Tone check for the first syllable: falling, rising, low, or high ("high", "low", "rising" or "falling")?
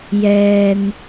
low